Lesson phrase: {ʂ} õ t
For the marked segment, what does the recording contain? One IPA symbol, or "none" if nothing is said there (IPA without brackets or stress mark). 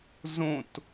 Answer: z